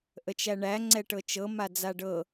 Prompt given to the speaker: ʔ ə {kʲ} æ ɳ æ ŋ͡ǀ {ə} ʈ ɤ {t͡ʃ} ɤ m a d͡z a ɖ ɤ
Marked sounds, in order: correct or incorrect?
incorrect: t͡ʃ, incorrect: ɛ, correct

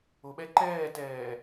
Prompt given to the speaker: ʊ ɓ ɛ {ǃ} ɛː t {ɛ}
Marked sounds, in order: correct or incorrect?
correct, incorrect: ɛː

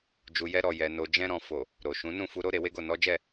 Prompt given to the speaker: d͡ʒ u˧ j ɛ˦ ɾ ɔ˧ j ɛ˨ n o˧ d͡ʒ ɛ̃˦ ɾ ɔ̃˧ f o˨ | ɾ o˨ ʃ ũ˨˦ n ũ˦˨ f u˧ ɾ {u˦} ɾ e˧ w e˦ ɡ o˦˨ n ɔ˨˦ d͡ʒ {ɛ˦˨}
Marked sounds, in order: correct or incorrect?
incorrect: o˦, correct

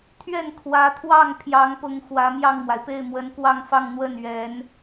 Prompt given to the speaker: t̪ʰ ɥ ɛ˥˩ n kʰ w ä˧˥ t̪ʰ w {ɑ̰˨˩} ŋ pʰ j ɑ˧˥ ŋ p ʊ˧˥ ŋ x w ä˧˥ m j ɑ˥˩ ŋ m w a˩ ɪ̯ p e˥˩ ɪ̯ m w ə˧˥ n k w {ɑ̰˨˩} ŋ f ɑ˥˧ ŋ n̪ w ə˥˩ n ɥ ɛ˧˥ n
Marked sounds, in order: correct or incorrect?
incorrect: ɑ˥˩, incorrect: ɑ˥˧

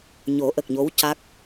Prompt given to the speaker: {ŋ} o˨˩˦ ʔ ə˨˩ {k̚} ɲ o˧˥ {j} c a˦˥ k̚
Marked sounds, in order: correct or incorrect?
incorrect: ɲ, correct, incorrect: w

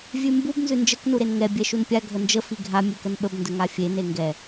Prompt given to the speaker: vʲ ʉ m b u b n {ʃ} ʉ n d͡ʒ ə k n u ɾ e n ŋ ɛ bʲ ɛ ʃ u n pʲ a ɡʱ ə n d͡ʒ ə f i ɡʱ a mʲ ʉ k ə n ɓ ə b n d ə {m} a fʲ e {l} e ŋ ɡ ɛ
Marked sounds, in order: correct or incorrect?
incorrect: z, incorrect: ŋ, incorrect: n

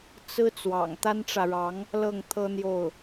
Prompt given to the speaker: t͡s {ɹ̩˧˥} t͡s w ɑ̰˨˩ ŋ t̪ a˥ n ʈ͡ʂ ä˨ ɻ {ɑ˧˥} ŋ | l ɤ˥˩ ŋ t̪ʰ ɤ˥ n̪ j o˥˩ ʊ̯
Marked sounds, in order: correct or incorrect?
incorrect: ɹ̩˥, correct

